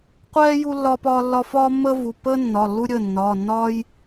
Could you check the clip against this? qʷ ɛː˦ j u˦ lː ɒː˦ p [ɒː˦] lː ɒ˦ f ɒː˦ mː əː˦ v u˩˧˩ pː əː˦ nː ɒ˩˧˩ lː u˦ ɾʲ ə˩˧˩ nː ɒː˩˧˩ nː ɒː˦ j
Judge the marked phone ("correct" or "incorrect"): correct